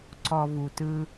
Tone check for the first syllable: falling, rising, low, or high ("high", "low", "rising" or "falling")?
low